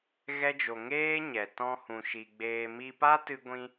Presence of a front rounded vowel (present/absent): absent